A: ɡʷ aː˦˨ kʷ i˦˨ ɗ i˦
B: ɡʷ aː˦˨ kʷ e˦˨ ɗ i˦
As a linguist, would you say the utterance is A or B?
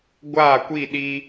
A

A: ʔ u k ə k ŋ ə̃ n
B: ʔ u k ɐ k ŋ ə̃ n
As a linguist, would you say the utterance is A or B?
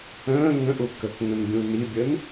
A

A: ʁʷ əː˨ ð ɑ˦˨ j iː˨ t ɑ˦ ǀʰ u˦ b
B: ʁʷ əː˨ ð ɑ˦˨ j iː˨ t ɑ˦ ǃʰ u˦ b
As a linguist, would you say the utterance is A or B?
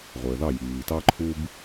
B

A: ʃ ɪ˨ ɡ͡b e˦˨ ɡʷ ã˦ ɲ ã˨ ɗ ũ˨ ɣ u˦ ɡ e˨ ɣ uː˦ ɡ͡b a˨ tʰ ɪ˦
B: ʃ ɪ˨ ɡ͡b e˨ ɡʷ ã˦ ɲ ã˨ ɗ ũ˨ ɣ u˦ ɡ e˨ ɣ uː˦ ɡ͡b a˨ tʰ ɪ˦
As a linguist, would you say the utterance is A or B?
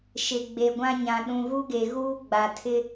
B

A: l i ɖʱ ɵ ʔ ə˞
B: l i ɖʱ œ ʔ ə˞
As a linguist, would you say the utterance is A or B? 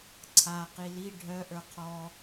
B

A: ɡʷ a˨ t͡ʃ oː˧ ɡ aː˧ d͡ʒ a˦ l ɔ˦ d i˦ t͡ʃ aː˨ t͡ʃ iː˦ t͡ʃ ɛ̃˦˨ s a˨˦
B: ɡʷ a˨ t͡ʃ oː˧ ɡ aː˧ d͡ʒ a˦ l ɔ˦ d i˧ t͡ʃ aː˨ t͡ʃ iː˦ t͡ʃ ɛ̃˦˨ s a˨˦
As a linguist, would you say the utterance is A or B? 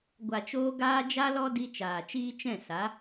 B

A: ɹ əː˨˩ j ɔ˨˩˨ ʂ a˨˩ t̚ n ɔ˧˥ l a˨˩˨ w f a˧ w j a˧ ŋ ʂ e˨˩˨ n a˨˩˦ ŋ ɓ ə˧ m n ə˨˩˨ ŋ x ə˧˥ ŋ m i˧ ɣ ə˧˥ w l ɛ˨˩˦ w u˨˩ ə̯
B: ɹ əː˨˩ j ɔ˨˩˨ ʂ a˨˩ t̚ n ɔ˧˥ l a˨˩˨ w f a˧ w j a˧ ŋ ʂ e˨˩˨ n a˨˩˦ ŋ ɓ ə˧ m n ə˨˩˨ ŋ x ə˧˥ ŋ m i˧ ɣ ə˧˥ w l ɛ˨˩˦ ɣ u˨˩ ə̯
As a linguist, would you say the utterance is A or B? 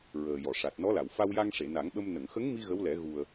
B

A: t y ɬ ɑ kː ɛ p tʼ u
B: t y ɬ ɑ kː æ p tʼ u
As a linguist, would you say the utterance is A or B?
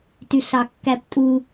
B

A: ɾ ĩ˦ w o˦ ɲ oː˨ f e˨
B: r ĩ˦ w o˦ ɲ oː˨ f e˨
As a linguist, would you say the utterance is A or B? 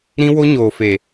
A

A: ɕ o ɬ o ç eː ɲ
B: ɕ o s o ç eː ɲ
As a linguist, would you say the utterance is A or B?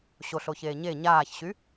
A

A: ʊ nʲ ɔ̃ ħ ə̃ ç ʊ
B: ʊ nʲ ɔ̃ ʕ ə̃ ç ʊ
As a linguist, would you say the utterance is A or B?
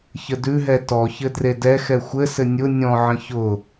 B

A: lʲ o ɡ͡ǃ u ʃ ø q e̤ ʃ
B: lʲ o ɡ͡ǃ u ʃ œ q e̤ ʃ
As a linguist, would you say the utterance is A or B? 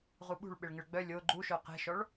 B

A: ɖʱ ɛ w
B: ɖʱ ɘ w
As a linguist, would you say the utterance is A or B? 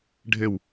B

